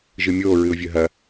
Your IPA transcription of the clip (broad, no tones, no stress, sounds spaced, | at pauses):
ʒ ɨ mʲ oː ɹ ɨ ʊ̯ vʲ ɵ ɦ ɐ